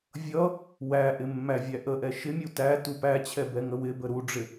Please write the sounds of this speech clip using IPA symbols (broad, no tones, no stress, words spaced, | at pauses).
vʲʌ | wæʔɪ mːævʲæʔəʔɛ ʃɪmʲu tæ tupæt͡ɕʰɛ bɛŋəwɪbə ɾuɖ͡ʐɪ